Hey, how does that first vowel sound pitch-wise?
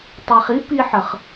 low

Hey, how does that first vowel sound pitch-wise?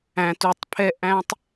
low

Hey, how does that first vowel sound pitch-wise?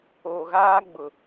low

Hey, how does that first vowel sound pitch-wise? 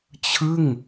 falling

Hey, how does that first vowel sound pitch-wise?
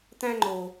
high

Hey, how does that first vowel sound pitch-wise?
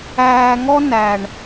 low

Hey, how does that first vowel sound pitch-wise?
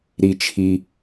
low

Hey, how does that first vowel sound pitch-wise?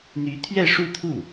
rising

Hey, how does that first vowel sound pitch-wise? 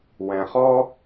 low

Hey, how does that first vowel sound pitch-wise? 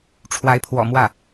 rising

